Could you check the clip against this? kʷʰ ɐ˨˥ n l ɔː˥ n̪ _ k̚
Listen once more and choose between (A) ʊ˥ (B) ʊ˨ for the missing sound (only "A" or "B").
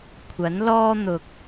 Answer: B